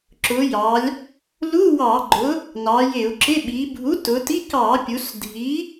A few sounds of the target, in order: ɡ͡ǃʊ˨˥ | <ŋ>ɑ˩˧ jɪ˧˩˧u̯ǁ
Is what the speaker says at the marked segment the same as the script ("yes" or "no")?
no